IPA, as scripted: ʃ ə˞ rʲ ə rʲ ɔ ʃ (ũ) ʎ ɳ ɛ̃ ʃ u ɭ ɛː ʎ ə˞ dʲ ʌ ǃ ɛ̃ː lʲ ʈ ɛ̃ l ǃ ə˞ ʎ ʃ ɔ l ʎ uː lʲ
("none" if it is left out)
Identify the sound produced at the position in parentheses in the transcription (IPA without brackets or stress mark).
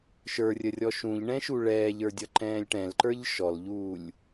ũ